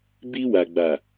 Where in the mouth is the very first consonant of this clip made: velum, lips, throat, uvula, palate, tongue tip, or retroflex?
lips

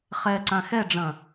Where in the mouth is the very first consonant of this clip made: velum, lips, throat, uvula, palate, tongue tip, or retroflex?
uvula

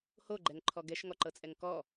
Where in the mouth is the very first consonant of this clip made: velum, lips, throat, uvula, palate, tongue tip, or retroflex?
throat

